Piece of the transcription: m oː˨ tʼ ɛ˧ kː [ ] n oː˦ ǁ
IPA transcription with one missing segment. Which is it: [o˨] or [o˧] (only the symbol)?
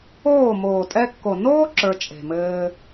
o˨